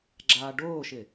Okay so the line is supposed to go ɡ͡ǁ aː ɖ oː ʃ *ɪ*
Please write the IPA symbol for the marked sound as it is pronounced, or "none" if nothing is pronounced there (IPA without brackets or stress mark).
ɪ